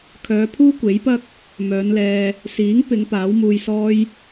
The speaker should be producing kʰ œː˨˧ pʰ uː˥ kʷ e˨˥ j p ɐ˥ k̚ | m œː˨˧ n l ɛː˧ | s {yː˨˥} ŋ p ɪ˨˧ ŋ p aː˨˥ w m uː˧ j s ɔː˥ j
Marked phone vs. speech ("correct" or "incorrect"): incorrect